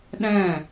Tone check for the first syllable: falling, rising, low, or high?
falling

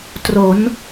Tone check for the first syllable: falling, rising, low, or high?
rising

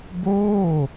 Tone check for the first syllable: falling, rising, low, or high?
falling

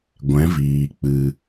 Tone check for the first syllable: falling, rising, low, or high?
rising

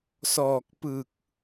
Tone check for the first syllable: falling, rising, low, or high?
low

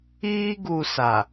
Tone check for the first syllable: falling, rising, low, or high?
high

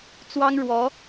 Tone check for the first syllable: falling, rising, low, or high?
high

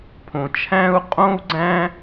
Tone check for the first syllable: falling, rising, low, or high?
low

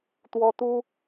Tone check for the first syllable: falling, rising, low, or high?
high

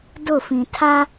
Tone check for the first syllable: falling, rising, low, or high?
falling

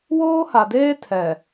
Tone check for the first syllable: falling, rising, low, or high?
high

